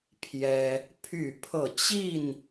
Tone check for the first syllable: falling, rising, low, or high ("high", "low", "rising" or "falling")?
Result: high